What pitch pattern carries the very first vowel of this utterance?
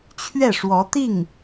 falling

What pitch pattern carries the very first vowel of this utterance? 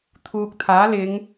low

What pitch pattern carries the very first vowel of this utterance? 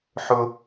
high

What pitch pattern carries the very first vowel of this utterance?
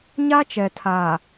high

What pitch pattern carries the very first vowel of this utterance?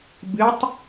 rising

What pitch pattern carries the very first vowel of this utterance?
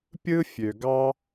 high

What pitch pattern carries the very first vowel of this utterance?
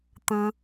low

